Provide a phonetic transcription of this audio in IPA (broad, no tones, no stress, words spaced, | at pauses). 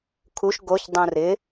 kʰuʃ ɡoçdˤũ rɪ